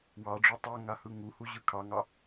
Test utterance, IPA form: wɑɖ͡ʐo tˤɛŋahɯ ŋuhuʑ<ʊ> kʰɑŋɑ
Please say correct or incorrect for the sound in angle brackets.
incorrect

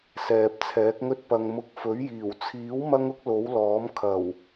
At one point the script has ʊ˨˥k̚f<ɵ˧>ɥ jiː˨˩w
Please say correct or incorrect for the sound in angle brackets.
incorrect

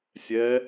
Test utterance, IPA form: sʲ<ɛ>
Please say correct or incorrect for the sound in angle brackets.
correct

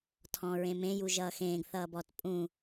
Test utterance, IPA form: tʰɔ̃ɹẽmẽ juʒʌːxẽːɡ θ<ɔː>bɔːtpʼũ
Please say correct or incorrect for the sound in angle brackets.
incorrect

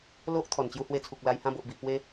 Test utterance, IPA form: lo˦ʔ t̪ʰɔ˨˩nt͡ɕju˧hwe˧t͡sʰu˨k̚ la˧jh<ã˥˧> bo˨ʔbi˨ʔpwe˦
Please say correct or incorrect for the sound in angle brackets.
correct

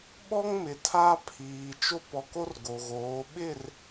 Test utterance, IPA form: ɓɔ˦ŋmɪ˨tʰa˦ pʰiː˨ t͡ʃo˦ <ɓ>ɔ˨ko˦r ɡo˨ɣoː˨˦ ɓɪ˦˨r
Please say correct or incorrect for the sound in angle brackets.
incorrect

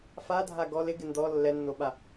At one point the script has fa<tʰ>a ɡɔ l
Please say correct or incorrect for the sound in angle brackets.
incorrect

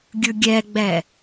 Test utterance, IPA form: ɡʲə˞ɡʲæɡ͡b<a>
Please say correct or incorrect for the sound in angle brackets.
incorrect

